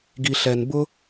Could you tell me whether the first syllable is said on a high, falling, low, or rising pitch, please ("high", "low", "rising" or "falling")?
low